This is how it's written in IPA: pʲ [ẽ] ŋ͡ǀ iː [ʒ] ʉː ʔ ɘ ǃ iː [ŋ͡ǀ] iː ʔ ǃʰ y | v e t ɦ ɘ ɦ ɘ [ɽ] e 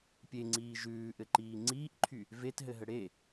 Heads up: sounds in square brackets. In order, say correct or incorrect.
incorrect, correct, correct, correct

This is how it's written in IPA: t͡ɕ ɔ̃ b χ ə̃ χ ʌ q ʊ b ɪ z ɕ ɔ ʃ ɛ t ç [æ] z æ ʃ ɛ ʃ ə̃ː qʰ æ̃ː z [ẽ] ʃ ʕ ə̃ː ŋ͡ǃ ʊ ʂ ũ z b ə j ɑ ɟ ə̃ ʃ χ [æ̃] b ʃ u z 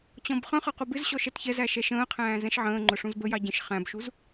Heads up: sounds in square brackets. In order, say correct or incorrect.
incorrect, incorrect, correct

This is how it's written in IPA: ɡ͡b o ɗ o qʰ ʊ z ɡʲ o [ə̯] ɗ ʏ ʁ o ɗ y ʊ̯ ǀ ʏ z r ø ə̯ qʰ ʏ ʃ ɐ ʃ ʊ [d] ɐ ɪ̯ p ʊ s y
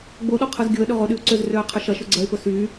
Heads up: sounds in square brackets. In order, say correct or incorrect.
correct, incorrect

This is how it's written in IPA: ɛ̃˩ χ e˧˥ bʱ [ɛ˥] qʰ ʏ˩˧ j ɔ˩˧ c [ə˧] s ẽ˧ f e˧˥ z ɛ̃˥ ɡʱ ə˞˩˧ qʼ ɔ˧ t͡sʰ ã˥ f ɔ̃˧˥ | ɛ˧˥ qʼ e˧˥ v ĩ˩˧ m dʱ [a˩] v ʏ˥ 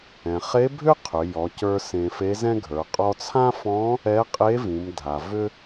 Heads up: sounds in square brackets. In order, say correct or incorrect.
incorrect, incorrect, correct

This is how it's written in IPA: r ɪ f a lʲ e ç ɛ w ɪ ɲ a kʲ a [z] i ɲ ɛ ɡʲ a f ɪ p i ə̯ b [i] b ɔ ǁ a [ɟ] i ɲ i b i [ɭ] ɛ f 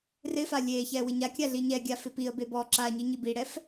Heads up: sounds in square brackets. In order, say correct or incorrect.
incorrect, incorrect, incorrect, incorrect

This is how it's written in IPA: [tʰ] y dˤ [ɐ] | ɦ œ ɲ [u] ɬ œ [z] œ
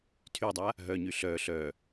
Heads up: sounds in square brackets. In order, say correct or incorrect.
correct, incorrect, incorrect, incorrect

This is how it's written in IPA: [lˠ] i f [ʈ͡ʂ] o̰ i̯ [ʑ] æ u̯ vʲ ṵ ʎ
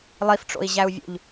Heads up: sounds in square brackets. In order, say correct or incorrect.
correct, correct, correct

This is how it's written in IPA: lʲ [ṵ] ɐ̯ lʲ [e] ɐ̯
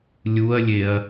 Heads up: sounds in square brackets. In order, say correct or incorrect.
incorrect, correct

